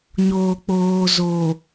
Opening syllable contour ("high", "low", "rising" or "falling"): low